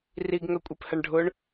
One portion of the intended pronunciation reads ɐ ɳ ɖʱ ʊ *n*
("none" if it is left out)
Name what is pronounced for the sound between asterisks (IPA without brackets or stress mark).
ɳ